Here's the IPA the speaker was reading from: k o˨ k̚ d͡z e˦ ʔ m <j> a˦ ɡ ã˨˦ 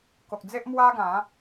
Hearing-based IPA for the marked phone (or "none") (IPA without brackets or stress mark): w